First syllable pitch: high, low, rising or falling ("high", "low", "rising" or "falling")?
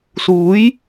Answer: rising